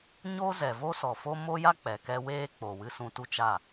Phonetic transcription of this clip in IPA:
ɲ o˦ z ɛ˨ v o˦ s ɔ˨ f o˦ m o˦ j a˦ k͡p ɛ˨ k ɛ˦ w eː˦ k͡p o˨ w ɨ˦ s ũ˧ t u˦ t͡ʃ a˦˨

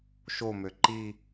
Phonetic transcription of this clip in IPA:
ʃ o m ø ǃ i

